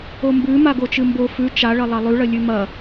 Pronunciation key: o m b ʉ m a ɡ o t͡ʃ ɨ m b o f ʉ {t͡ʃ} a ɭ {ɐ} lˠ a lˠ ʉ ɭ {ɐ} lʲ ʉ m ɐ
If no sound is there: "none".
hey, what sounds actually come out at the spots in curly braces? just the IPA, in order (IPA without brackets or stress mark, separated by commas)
t͡ʃ, ɐ, ɐ